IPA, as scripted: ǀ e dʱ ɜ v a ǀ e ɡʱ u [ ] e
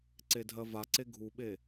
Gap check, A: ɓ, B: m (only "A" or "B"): A